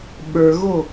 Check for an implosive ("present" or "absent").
present